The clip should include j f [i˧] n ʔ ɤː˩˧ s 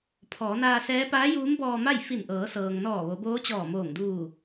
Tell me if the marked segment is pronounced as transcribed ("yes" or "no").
no